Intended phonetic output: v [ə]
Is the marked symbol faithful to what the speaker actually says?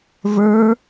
no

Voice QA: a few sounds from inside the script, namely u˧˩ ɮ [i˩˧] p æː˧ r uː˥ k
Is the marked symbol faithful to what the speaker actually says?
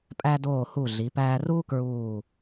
yes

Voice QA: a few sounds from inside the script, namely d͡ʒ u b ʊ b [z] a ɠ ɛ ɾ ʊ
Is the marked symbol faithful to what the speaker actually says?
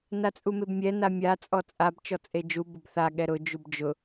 no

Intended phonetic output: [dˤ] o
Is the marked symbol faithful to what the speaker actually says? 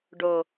no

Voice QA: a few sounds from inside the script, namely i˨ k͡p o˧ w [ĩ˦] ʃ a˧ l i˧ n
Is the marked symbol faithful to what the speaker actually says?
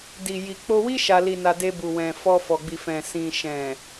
no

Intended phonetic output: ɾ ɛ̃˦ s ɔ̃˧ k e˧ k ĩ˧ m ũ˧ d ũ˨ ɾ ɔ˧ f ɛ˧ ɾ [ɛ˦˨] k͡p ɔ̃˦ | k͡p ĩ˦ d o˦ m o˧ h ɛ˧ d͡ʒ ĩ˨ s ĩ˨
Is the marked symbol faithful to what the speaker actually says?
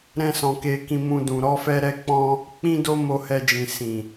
no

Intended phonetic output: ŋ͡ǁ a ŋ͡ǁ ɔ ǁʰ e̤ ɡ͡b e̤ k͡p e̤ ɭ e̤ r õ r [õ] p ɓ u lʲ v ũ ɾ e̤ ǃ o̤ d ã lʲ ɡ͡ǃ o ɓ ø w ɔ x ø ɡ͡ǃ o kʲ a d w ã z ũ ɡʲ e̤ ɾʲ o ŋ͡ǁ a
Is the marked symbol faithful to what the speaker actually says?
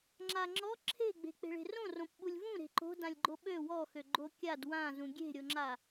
yes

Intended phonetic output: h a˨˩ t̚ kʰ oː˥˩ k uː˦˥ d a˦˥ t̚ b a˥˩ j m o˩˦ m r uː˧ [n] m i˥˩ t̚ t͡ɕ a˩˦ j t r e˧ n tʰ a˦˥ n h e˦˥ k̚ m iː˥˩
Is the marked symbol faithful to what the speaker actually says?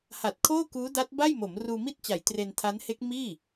no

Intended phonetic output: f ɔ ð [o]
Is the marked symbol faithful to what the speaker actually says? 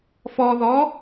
no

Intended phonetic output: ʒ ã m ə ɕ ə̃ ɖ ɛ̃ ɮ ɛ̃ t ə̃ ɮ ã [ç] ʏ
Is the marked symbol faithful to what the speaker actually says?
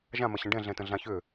yes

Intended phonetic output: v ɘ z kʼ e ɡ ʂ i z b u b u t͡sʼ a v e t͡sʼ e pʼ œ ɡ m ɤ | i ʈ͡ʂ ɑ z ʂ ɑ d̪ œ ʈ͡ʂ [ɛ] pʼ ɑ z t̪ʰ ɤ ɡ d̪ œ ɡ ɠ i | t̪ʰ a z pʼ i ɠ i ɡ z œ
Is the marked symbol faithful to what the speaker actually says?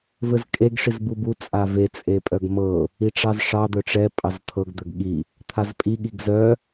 yes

